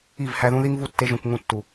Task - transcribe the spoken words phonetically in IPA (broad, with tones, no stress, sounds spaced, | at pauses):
i˦˨ v h æ˧ ð ũ˦ ð i˦ ŋ v u˦ tː e˧ ʒ ũ˨ k ŋ ũ˧ tː u˨